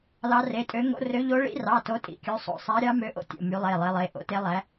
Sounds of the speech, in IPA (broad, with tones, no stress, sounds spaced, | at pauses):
l ɑ˨˦ r e˩˧˩ tʼ ø˨˦ ŋ o̰˨˦ r ø˨˦ ʎ o˨˦ ɭ ḭ˨˦ r ɑ˩˧˩ t o˨˦ tʼ ḭ˩˧˩ kʲ o˨˦ sˤ o̰˩˧˩ sˤ æ˨˦ ɾʲ ɑ˨˦ m ø˨˦ ʔ o̰˨˦ tʲ o̰˩˧˩ m y˨˦ lˠ e˩˧˩ lˠ e˨˦ lˠ e˩˧˩ ʔ o̰˨˦ t e˨˦ lˠ æ˨˦